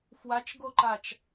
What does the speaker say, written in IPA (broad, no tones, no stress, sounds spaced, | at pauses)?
f w a t͡ʃ ɡ o ǃ a t͡ʃ